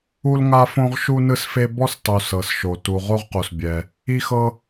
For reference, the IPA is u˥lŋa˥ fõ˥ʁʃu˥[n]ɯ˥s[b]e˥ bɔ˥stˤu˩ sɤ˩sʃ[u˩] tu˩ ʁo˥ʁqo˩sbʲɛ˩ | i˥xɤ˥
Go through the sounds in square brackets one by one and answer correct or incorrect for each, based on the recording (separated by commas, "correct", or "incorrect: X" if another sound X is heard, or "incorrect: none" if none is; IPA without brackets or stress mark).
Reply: correct, incorrect: f, incorrect: o˩